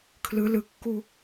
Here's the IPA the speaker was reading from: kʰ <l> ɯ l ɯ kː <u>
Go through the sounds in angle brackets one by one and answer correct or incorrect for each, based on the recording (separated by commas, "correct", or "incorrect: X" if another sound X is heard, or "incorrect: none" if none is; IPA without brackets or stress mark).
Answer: correct, correct